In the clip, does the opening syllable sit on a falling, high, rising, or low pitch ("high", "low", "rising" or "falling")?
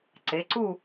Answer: rising